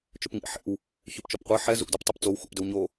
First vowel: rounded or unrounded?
rounded